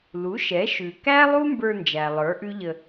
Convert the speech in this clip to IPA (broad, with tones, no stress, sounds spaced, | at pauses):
l u˩˥ ʃ ɛ˩˥ ʃ ʉ˩ k æ˥ lˠ u˥ m b ə˞˧ n d͡ʒ æ˩ lˠ ə˞˩˥ ʔ ʉ˥ ʎ ə˧